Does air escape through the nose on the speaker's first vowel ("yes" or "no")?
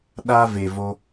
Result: no